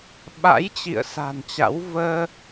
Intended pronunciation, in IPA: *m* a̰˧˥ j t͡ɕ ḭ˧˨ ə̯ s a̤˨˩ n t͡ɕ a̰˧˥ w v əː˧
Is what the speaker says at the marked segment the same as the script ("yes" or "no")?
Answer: no